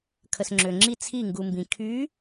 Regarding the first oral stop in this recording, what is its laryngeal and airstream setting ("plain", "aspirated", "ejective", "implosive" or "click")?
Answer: aspirated